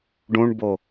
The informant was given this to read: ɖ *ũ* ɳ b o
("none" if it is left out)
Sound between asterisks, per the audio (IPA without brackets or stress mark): ũ